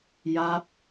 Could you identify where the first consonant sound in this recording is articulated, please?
palatal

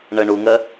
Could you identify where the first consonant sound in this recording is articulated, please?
retroflex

